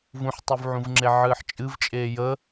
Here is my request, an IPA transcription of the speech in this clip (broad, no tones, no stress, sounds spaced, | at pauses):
v ũ ħ tˤ y v ʕ ũ v ŋ͡ǁ e ʕ ɨː ħ t͡ʃʼ ɨ v t͡ʃʼ eː j ə